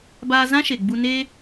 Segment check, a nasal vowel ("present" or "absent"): present